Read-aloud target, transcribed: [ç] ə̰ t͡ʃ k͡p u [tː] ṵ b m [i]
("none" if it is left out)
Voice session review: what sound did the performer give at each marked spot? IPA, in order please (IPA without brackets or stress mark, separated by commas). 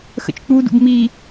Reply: x, d, i